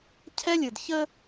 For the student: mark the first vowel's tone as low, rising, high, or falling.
high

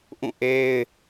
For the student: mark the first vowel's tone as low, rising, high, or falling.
falling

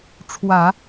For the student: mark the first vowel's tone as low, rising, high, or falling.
low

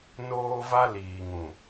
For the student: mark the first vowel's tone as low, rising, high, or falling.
high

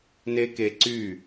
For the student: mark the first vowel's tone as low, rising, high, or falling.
high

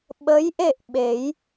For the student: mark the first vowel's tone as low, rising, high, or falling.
rising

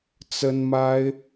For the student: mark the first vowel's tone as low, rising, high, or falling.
high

